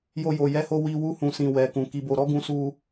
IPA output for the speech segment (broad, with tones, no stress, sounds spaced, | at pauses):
j o˦ j o˧ j ɛ˦ h o˦ w i˦ w u˦ h ũ˧ s ĩ˧ w ɛ˧ k ũ˧ k i˧ b o˧ ɾ ɔ˦ ɡ ũ˦ s u˦